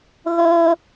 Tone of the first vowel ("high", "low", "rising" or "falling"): high